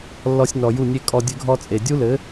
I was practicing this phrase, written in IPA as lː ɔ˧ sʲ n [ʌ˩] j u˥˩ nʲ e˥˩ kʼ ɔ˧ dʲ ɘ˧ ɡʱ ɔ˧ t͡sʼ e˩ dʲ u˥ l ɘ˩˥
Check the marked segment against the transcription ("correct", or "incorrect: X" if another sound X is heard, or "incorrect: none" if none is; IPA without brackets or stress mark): incorrect: ɔ˩